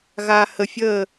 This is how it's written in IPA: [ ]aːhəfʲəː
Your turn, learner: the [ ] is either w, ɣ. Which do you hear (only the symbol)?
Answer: ɣ